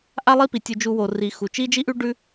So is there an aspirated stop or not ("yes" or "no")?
no